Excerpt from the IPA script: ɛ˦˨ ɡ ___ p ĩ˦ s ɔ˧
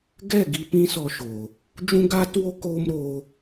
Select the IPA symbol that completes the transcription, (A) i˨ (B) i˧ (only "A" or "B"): B